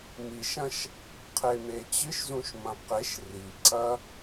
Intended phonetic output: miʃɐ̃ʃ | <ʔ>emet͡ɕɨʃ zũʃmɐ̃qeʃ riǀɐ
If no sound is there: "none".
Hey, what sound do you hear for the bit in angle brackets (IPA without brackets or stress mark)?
qʰ